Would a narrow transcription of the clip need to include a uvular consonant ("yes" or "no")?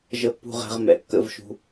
yes